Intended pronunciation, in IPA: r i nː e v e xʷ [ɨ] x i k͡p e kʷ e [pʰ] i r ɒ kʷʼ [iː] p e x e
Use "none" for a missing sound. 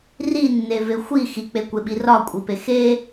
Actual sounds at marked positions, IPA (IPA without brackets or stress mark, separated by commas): i, ɓ, i